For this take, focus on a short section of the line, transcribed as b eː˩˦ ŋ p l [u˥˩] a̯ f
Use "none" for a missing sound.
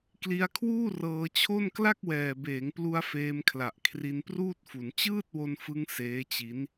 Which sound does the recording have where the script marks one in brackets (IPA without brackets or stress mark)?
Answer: u˧